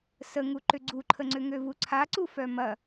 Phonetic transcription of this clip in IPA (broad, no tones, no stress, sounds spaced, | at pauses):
s ə ŋ u ǃ ʏ ɡ͡ǀ u ǃʰ ə ŋ͡ǀ ʏ ŋ ø v u ǀʰ a ǀ u f œ m ɐ